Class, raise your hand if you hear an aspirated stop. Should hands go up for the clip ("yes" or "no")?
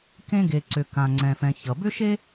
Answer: no